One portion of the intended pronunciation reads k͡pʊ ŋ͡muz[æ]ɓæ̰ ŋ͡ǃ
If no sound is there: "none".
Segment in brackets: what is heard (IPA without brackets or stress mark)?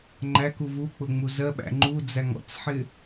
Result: ɜ